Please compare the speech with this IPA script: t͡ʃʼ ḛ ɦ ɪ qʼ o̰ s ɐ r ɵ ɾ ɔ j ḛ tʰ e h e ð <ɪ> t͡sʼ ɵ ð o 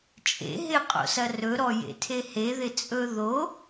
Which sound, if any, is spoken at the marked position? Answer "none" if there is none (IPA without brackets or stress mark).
ɪ